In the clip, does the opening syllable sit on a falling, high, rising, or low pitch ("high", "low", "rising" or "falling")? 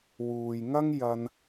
low